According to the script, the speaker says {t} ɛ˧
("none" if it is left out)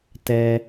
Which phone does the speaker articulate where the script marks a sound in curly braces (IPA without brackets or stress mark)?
t